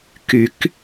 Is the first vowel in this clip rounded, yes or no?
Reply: yes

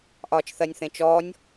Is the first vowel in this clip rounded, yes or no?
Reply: yes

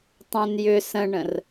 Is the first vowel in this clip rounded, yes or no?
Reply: yes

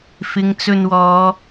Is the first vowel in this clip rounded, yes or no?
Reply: no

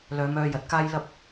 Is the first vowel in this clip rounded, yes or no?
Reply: yes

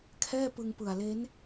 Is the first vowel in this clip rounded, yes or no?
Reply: no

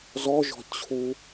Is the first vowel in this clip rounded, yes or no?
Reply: yes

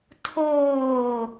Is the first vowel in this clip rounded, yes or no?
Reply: yes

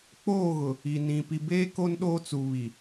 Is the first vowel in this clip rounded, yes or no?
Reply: yes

